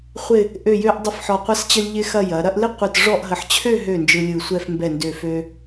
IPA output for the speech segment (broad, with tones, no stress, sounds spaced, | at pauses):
χʷ ɪ˥˧ | ʔ ø˥˧ j ø˥ ʔ dˤ ɪ˥˧ f ħ ɔ˧˩ qʷ ɐ˥ s t͡ɕ ə˥ lʲ ʎ ɪ˥ x ɐ˥˧ j ɐ˩˧ ɾ ɐ˥˧ ʔ l ɪ˥ qʷ ɯ˧˩ t ʐ ɔ˥˧ ʔ ɦ ə˧˩ ħ t͡ɕʰ ø˥˧ ɦ ø˧˩ n d͡ʒ ɯ˧ lʲ ɯ˧˩ sʷ ɛ˥˧ f m b ɛ˧˩ n d ø˧˩ f ø˧